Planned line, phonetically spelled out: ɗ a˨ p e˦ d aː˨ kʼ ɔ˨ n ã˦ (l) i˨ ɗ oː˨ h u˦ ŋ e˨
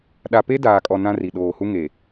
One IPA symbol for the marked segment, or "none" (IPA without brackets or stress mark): r